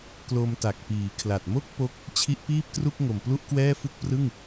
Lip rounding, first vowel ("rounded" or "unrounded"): rounded